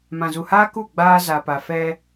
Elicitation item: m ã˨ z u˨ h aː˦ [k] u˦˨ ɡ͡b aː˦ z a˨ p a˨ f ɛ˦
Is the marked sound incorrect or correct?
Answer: correct